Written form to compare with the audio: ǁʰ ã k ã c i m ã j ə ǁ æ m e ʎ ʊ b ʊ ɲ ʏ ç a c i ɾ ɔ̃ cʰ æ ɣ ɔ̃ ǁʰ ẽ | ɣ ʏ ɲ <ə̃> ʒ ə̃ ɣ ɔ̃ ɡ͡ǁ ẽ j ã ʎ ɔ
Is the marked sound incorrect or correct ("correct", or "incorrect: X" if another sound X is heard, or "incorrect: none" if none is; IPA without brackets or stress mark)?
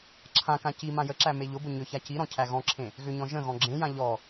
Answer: incorrect: ɔ̃